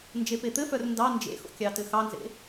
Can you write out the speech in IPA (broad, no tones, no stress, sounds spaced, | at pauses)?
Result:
n d͡ʒ e p e t̪ ɘ f œ r n d ɑ n d͡ʒ ḛ x o̰ kʲ ɑ t ɘ x ɑ n z ḛ